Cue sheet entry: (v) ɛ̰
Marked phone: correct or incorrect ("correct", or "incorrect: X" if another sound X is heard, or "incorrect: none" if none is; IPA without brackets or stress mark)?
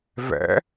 correct